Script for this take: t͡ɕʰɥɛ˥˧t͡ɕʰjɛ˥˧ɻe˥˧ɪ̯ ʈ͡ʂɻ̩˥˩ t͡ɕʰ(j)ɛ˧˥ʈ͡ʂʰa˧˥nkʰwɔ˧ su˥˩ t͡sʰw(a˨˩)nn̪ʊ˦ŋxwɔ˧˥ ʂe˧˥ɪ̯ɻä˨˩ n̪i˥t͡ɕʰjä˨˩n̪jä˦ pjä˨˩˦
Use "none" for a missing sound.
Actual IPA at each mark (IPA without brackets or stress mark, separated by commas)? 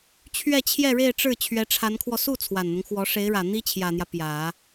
ɥ, a˨˩